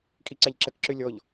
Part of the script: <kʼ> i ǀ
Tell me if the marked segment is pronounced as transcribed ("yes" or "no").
yes